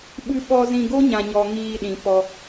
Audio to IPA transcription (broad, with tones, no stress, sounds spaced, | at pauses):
ɓ ɨ˨ ɓ ɔ˨ z ĩ˨ ɡ o˦ ɲ ã˨ ɲ ɔ˨ ŋ iː˧ ɗ ĩ˨ p ɔ˧